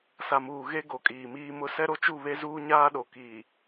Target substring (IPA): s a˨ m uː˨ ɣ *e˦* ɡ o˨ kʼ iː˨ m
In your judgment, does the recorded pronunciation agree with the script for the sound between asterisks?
yes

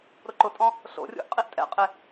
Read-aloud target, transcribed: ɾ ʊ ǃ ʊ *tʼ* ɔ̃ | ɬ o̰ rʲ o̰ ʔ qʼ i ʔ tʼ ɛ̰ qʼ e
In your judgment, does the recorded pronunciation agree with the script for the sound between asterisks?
yes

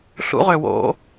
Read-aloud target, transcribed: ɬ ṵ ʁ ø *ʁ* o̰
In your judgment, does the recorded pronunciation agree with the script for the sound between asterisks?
no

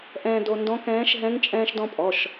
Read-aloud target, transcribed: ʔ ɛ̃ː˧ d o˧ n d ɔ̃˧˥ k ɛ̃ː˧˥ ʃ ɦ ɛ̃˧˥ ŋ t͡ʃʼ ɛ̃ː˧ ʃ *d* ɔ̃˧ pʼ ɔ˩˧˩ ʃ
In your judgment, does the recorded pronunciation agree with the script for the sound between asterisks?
yes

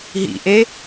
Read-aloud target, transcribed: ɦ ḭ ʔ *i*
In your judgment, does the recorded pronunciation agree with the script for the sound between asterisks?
no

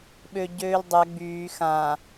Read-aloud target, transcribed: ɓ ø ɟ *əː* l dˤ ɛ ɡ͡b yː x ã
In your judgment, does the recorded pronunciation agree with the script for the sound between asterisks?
no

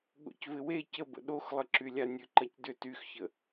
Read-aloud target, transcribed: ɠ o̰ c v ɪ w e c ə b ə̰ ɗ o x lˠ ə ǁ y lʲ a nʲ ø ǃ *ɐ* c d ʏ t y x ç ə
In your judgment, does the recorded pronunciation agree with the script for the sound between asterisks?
yes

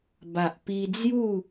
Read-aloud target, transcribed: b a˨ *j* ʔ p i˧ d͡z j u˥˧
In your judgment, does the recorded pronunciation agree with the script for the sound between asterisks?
no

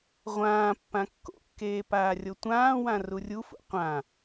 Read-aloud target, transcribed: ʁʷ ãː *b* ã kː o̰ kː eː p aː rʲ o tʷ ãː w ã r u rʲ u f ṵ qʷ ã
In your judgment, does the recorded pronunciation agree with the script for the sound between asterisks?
no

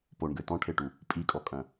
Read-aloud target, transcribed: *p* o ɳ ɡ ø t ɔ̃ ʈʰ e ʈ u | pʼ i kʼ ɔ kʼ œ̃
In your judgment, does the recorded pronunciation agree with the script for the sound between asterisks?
yes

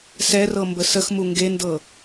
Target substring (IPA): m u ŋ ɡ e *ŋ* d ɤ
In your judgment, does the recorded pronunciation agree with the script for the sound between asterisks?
no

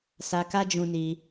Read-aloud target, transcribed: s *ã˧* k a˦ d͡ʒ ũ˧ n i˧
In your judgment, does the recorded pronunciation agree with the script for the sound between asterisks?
no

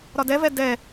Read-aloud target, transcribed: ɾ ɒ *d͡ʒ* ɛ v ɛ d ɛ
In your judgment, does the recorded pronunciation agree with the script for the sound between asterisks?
no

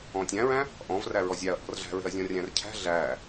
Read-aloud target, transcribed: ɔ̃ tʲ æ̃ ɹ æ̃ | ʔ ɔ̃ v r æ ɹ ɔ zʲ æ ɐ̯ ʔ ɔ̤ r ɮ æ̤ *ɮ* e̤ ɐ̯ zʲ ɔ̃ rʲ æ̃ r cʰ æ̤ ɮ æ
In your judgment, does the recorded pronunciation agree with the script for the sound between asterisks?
no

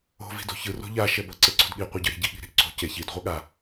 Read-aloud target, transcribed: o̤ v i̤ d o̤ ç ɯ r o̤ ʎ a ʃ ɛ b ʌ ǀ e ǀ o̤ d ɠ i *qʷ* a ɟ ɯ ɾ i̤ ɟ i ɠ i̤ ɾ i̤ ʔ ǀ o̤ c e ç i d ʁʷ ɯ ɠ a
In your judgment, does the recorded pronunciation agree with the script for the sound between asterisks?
yes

